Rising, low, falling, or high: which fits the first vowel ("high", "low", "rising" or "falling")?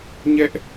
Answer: high